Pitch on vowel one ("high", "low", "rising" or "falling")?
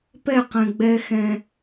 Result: falling